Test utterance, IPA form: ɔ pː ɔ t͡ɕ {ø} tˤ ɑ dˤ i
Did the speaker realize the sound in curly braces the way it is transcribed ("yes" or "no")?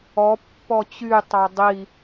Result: no